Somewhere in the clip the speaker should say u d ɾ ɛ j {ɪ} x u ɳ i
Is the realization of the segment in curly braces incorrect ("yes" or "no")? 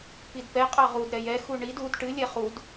yes